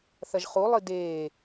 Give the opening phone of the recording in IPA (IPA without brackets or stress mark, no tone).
θ